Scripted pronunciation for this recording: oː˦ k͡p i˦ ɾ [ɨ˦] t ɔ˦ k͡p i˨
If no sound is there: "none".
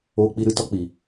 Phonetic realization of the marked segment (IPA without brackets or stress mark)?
ɨ˦